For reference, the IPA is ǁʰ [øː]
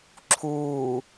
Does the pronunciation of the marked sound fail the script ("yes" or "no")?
yes